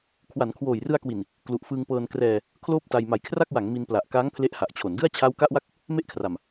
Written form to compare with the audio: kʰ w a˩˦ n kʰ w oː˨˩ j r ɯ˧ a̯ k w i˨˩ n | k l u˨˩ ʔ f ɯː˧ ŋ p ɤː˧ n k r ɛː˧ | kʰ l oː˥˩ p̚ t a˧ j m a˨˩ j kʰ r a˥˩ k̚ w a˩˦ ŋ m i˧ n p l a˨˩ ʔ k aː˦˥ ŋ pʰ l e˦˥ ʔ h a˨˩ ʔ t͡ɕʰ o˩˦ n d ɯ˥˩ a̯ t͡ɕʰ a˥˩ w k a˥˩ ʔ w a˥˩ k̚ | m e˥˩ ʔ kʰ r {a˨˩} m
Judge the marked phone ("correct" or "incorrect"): correct